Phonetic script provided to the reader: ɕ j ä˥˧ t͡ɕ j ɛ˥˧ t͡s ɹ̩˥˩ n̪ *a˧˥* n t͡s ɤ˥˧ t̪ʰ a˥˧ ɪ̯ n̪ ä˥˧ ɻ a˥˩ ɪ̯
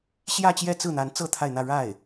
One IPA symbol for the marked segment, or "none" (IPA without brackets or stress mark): a˧˥